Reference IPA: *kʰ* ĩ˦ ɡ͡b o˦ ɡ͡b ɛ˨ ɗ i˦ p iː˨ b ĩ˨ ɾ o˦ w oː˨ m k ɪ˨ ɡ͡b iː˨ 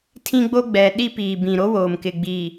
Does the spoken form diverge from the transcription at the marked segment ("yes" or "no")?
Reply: yes